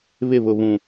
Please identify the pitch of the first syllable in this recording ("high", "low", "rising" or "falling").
falling